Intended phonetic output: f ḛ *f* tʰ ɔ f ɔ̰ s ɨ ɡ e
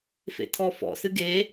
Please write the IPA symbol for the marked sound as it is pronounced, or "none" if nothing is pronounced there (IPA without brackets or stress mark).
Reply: none